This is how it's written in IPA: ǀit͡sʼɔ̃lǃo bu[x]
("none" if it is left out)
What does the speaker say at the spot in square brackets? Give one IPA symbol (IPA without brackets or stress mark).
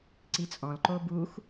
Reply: x